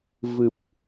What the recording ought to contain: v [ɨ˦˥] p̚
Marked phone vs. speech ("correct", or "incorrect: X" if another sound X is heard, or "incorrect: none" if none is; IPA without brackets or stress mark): incorrect: ɨ˨˩